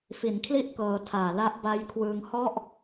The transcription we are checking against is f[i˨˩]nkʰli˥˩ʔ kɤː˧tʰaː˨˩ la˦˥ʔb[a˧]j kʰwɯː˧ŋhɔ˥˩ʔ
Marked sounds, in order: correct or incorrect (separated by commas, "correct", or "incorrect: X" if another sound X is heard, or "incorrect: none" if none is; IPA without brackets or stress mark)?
incorrect: i˩˦, incorrect: a˦˥